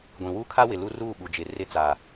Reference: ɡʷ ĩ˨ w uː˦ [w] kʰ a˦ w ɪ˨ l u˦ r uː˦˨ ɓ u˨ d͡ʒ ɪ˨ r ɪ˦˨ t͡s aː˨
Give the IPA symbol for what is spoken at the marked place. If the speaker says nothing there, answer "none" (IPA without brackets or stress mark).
none